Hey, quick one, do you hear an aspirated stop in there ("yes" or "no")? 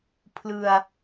yes